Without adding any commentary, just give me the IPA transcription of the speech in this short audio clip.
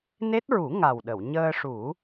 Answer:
n e˦˥ t̚ ɹ u˨˩˦ ŋ a˨˩ w ɗ ə˨˩˨ w ɲ əː˧ ʂ u˨˩˦

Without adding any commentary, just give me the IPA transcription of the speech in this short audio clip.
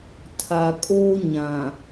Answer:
tʰ a˨ kʼ oː˦ ɲ ã˨

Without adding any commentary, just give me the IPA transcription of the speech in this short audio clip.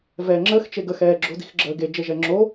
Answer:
v ɛː ŋ͡ǁ əː x t͡ʃ e ɡ ə x ɛː ɡ͡ǁ o̤ d i̤ x ɡ͡ǁ əː ɡ e d͡ʒ e ʒ ɛ ŋ͡ǁ o

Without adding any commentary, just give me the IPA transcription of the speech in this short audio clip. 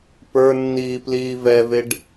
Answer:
p ə˞ nː iː p l iː v ɛ v e ɖ

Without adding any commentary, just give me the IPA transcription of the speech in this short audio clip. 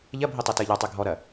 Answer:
ʎ ɐ bʱ i tˤ o t əː ʎ a tˤ ø ɡʱ ɔ ɾ ɐ

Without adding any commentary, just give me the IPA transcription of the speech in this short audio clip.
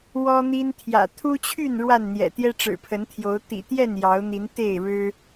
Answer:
w ɔ˦ n̪ i˦ n t̪ʰ j ä̰˨˩ t̪ʰ u˦ t͡ɕʰ y˥˨ n ɻ w a˥˨ n n̪ j ɛ̰˨˩ t̪ j ɛ˦ ʈ͡ʂ ɻ̩˨˩ pʰ ə˨˦ n t̪ʰ j o˨˦ ʊ̯ t̪ ḭ˨˩ t̪ j ɛ˥˨ n j ɑ˨˦ ʊ̯ n̪ i˨˦ n t̪ e˥˨ ɪ̯ ɻ ɻ̩˦

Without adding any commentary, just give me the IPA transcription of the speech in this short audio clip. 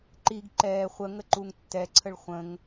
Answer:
ǃ i ɡ ǃ ɛː χʷ ə ŋ ə ǃ u ŋ tː ɛ ǀʰ ə ɭ χʷ ə̃ ŋ

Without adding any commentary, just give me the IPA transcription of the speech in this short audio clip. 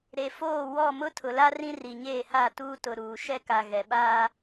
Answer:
ɾ e˨ f oː˦˨ w ɔ˦˨ m ʊ˦ tʰ ʊ˨ l a˦ r ĩ˦ r i˨ ɲ eː˦˨ h a˦˨ t uː˦ t ʊ˨ ɾ uː˨ ʃ ɛ˦ k a˨ ɣ ɛ˨ ɓ aː˦

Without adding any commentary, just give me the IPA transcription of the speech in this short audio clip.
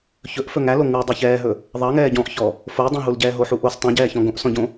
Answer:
ç ɵ ʔ f ɵ ŋ æ l o ŋ u dˤ ɵ ç ɛː ɦ ɵ | ðˤ ɑ ŋ ɛː ɟ ɔ̃ ʔ ç ɔː | f o dˤ ɛ̃ ɦ u l ɟ ɛː ɦ o ħ u ʔ o s tˤ ɛ̃ ɟ ɛː ç ɔ̃ ɡ õ ʔ s ɔ̃ ɟ õ

